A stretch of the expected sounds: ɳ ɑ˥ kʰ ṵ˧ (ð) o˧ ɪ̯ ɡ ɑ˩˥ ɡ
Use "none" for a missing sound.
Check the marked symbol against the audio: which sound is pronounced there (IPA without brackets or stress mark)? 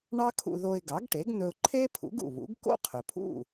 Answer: ð